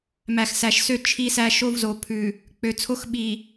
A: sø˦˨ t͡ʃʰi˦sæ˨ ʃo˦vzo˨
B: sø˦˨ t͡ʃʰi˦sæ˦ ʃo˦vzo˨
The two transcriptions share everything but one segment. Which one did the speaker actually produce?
B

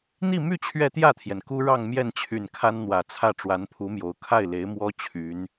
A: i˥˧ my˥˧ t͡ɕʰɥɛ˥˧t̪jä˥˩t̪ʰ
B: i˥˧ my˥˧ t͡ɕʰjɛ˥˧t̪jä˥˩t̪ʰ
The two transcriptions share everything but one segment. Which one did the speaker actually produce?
A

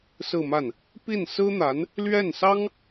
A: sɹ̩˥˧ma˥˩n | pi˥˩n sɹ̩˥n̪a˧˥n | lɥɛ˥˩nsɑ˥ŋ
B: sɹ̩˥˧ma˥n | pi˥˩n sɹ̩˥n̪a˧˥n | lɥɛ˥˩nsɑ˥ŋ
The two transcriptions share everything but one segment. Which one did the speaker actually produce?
A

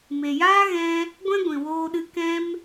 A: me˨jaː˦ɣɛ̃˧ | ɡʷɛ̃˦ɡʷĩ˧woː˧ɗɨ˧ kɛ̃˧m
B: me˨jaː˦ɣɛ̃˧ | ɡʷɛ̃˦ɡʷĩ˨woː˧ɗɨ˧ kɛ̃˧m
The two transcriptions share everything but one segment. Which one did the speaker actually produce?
B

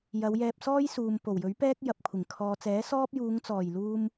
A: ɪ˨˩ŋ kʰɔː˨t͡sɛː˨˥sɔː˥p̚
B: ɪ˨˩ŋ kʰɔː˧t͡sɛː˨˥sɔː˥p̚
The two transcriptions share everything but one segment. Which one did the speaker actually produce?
A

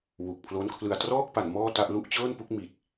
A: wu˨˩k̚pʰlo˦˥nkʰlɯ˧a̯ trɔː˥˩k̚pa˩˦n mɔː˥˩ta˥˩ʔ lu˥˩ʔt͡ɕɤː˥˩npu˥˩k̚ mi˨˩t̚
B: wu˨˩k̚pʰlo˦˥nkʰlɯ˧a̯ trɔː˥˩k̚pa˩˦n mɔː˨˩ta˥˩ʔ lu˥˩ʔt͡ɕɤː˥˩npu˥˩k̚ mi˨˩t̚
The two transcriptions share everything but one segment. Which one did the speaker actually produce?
A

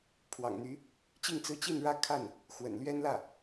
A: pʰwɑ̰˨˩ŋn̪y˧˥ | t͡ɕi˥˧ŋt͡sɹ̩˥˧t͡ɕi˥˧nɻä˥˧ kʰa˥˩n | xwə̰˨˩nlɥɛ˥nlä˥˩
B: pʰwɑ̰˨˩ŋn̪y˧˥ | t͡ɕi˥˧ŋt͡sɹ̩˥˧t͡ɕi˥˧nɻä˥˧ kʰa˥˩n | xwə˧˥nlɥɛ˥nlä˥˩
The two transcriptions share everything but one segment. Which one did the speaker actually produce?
A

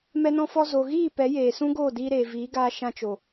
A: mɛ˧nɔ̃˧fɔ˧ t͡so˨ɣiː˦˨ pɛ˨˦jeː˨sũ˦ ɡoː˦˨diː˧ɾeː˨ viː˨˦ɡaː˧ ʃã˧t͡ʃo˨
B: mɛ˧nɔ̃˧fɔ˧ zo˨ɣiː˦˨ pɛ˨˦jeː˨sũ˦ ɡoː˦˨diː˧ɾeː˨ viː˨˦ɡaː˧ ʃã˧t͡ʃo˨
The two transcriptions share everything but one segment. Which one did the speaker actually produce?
B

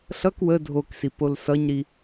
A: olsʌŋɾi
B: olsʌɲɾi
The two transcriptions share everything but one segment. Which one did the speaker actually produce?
B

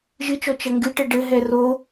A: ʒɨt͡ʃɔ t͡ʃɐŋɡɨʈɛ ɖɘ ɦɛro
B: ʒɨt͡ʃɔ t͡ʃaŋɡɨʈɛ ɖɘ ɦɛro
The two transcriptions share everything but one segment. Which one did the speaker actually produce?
A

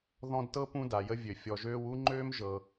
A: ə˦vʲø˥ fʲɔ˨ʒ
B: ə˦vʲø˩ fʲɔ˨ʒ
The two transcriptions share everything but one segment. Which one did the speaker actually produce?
B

